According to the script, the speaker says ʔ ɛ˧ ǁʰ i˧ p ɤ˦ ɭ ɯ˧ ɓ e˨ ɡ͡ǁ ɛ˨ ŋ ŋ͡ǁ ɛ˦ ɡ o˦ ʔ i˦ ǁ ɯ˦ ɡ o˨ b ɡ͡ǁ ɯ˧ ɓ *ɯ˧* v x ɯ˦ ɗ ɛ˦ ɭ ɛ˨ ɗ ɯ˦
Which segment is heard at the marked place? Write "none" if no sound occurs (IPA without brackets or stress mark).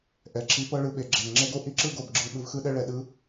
ɯ˧